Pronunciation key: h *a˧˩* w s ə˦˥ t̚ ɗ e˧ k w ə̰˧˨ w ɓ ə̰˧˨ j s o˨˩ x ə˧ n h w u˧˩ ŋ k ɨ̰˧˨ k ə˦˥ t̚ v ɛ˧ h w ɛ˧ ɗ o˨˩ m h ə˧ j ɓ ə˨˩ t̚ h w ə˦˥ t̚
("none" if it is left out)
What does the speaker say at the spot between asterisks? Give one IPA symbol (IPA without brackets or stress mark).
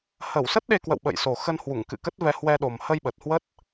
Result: ə˧˩